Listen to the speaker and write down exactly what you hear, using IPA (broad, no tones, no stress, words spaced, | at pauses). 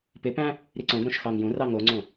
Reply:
pɪpæ̃ | ɾiǀõɡɾõʃ xɑŋjũrɑ ŋoŋ͡ǀõ